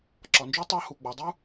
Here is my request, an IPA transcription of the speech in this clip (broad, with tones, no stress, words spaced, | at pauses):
ǁɒ˩nd͡ʒy˥ tˤɑ˥hu˩ɡ͡bɔ˩ dˤu˥